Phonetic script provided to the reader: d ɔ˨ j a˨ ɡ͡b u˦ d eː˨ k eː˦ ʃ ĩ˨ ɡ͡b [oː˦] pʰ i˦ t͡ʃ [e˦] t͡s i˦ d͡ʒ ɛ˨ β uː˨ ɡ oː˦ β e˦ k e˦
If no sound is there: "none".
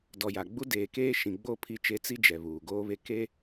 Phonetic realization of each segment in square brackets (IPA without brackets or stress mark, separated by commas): o˦, e˦